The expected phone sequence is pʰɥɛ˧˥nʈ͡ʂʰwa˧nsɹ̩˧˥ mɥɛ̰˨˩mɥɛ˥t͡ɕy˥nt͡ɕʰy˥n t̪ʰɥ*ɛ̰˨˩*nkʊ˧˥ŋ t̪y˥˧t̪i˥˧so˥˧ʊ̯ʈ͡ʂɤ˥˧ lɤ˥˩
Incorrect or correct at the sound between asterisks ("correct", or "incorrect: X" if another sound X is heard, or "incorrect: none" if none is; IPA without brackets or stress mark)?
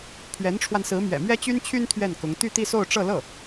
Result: incorrect: ɛ˥˩